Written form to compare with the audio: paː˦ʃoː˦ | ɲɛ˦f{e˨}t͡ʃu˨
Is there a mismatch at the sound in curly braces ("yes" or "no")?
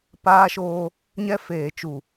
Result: yes